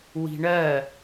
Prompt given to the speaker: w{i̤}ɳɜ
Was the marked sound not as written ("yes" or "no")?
no